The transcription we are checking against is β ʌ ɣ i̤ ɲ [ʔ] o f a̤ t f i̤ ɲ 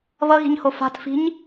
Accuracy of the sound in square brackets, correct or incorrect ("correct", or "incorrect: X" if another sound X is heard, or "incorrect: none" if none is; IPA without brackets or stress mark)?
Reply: incorrect: h